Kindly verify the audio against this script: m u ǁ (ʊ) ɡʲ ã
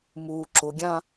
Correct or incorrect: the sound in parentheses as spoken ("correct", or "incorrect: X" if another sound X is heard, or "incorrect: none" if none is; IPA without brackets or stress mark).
correct